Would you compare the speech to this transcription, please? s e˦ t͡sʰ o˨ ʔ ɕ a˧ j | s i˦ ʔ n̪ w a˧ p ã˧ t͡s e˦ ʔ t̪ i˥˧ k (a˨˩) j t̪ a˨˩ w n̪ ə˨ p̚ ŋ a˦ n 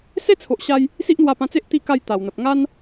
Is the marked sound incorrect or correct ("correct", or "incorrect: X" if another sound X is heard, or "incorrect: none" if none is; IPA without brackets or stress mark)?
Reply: incorrect: a˥˧